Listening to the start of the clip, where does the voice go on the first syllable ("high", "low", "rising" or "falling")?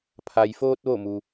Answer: low